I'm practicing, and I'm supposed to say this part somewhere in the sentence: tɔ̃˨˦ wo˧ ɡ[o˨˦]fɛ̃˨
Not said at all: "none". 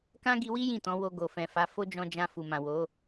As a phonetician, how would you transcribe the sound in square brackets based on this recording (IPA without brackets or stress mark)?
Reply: o˨